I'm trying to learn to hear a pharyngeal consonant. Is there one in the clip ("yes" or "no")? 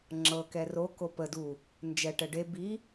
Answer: no